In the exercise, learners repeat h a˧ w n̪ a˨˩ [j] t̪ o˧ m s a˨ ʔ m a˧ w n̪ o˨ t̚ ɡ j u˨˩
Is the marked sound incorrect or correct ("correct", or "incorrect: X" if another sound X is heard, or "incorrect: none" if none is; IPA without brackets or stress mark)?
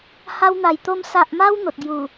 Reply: correct